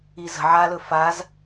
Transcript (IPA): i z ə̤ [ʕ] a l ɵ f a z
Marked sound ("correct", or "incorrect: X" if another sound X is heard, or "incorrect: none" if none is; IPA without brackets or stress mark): correct